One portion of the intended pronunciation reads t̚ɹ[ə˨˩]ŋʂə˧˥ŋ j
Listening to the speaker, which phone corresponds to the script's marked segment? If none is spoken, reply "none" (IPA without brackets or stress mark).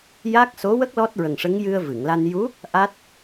ə˨˩